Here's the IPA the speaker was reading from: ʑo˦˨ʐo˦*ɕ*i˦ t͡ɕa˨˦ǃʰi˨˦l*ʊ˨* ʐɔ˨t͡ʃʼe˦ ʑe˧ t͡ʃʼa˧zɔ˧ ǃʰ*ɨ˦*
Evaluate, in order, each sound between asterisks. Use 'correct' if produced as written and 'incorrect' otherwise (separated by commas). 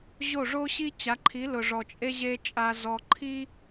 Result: correct, correct, incorrect